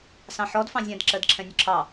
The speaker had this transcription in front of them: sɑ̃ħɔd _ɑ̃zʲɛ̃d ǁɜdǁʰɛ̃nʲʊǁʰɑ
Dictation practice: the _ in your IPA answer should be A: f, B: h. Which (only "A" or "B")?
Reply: A